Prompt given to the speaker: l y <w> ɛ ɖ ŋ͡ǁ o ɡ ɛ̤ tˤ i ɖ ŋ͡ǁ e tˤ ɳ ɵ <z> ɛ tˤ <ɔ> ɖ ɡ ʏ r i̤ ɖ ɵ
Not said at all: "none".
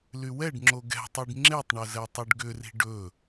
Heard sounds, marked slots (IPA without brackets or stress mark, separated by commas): w, z, ɵ